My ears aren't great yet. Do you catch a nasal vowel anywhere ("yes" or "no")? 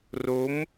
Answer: no